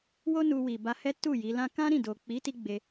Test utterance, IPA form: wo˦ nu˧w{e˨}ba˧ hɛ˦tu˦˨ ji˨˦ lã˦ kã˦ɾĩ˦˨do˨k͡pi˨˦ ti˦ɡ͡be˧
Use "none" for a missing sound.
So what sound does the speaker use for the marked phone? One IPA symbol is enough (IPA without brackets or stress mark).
i˨